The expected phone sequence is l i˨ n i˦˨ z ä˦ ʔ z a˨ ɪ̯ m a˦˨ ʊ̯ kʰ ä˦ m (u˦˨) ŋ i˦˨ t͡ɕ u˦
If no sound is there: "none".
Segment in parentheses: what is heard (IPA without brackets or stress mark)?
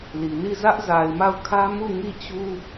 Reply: u˦˨